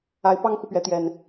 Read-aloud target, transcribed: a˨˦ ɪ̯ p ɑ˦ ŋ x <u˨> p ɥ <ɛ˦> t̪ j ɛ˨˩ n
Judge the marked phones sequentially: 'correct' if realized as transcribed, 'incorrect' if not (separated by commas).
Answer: correct, incorrect